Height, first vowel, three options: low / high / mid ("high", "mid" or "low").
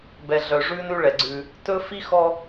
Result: mid